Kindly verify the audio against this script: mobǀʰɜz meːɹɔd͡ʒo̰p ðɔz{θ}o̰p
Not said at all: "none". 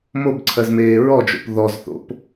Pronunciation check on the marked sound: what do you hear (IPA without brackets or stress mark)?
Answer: θ